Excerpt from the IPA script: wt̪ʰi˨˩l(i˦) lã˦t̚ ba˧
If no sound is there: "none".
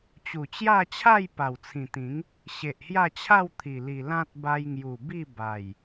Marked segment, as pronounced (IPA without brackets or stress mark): i˨˩